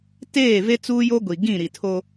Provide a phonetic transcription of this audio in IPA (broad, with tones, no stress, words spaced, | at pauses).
teː˦˨ve˦ t͡suː˦jo˦ ɡʷi˨ ɡĩ˦˨ɾi˨tʰo˦